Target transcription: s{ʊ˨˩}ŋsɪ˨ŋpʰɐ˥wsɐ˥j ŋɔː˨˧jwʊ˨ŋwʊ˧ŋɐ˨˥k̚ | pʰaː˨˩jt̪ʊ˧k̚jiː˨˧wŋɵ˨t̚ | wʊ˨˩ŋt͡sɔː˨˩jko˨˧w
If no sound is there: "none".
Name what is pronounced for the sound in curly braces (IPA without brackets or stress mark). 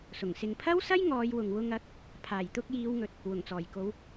ʊ˨˩